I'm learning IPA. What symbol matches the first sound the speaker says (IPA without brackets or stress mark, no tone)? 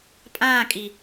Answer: pʼ